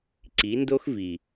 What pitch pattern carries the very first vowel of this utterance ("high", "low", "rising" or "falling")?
rising